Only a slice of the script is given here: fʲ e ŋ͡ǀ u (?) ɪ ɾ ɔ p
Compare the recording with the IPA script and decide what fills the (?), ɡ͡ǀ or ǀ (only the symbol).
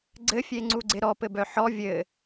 ɡ͡ǀ